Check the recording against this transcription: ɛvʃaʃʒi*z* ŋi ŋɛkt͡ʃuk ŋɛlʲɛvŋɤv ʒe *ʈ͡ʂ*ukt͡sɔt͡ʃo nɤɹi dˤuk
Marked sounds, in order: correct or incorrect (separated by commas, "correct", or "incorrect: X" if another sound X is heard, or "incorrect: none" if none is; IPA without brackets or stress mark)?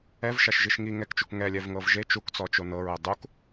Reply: incorrect: ʃ, incorrect: t͡ʃ